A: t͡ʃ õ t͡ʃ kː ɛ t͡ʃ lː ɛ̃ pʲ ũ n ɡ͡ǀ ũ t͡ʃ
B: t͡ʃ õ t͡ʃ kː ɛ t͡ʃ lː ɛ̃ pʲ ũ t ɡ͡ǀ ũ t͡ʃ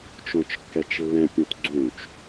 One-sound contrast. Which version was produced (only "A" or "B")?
B